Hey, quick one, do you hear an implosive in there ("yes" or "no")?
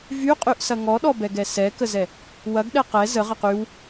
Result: yes